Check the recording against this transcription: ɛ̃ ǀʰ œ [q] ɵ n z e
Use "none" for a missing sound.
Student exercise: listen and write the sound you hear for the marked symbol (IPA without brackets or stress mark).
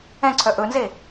ʔ